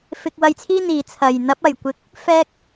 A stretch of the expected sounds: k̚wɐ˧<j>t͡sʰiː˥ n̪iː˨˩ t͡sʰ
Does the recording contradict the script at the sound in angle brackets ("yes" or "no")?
no